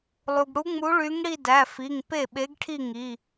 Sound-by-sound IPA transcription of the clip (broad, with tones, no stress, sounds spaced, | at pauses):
lˠ u˩ ɡ ɽ u˧˥ ŋ͡m u˧˥ ɭ y˧˥ ŋ ɽ i˥˧ d æ˩˧˩ f i˩˧˩ ŋ p e˥˩ ɓ e˧˥ ɡ ʈʰ i˥˧ ŋ i˩˧˩